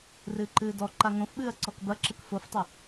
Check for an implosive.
present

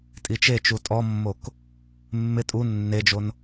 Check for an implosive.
absent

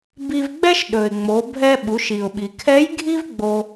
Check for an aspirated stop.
present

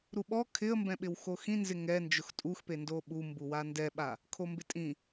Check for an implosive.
present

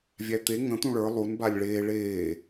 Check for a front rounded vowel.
absent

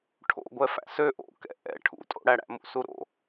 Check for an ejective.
present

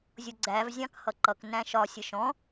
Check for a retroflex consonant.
absent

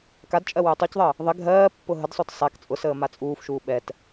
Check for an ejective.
present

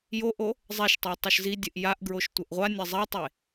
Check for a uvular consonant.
present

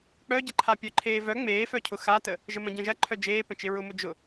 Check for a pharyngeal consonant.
absent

